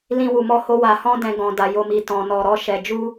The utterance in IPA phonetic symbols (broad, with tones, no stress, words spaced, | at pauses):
lĩ˧ wu˨mɔ˧ho˧ wa˨hɔ̃˧ dɛ̃˦ɡɔ̃˧da˧ jo˧mi˧ tɔ̃˧ nɔ˧ɾɔ˦ʃɛ˧ d͡ʒu˦